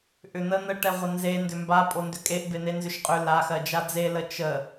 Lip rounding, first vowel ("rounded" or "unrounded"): rounded